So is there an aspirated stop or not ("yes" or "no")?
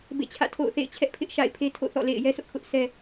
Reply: yes